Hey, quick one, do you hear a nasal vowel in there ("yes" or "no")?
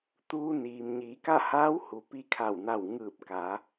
no